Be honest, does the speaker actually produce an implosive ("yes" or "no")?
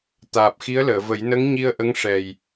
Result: no